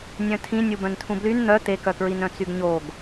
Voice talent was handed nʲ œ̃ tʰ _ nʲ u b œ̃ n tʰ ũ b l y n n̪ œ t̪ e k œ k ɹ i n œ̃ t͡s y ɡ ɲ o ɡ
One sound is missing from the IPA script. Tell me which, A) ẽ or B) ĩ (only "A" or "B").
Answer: B